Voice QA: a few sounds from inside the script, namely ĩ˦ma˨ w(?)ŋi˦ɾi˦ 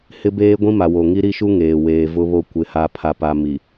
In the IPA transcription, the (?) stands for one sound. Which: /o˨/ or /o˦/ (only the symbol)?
o˨